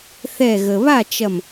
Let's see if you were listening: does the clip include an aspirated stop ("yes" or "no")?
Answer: no